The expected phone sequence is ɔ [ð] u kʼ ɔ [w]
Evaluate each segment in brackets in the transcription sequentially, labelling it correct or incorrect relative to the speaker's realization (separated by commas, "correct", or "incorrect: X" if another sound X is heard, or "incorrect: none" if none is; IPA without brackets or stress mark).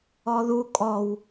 correct, correct